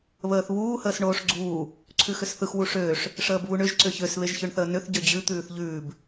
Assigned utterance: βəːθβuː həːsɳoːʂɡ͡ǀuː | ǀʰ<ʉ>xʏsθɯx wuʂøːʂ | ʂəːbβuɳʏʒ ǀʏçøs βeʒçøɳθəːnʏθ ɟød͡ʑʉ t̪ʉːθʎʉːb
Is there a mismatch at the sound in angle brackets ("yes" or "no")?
no